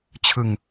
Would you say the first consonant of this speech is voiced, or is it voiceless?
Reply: voiceless